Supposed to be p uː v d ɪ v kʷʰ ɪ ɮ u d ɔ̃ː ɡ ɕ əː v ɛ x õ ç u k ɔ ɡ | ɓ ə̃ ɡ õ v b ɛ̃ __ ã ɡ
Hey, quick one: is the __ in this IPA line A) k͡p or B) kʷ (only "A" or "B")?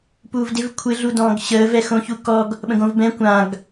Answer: B